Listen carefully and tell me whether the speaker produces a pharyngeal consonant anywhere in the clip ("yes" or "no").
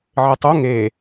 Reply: yes